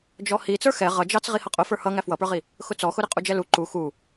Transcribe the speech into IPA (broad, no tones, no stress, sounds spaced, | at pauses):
d͡ʒ ɔ h i t͡s ə˞ x ɛ ʁ ʌ d͡ʒ ɑ t͡s ʁ i h ʌ qʼ ʊ f ə˞ h ʌ ŋ æ f w ʌ p ə˞ ʁ i | x ʊ t͡s ɔ x ʊ ɾ ɪ qʼ u d͡ʒ ɛ l u ǃ u x u